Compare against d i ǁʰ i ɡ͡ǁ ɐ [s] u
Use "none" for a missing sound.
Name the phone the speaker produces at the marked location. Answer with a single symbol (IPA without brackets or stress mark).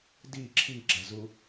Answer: z